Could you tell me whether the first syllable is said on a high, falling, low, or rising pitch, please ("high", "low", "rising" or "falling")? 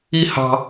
high